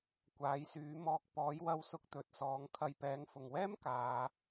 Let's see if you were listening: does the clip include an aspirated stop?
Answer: yes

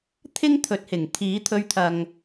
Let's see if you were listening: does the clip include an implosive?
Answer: no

